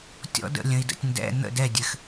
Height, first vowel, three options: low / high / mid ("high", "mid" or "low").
mid